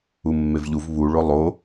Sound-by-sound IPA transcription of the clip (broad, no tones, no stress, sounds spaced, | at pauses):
u mː e v ʎ u v β u ɭ o lˠ o